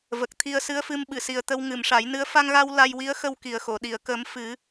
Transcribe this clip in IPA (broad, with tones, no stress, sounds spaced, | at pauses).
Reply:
v ə˨˩ k̚ t̪ʰ i˧ ə̯ s ɨ˧˥ ə̯ f ɨ˧ m ɓ ɨ˨˩˨ s i˨˩ ə̯ t̪ ə˧ w ŋ ɨ˨˩˨ m ʂ a˨˩˦ j n ɨ˧˥ ə̯ f a˧ ŋ ɣ a˧ w l a˧ j w i˧˥ ə̯ x ə˧ w k i˨˩ ə̯ x o˨˩˨ ɗ i˨˩˨ ə̯ k ə˨˩˦ m f ɨ˨˩˦